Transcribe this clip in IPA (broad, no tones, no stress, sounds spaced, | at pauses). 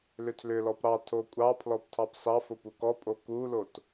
l ʏ tʰ l ʏ l ɔ p ɾ ɑ tʰ o kʷʼ ɑ pʰ l ɔ p tʰ ɑ p s ɑ f o p u k ɔ pʼ o k u l o t